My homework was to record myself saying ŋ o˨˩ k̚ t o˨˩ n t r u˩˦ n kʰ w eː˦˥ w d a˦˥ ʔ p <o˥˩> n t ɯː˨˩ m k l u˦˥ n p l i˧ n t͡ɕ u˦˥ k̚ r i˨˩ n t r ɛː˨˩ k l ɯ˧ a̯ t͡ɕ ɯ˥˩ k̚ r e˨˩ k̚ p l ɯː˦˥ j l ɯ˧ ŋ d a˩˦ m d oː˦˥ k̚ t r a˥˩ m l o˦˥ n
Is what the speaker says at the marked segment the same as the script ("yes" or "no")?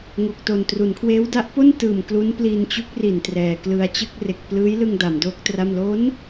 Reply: yes